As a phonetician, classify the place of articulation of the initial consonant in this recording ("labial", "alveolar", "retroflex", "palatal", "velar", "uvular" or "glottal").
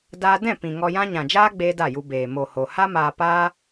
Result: alveolar